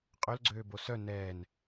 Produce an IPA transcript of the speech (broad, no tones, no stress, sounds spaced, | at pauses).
qʼ ɵ l ɡ͡ǀ øː b o s œ n ɛː n